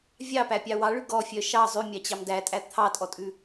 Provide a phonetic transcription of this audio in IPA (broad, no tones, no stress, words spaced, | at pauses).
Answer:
vʲɑpæpʲɑ wɑɭʉ ɡɔfʲœ ʃɑ zˤʉmʲɑt͡ɕɑm dætʼæ t̪ʰɑtʼɔtʼʉ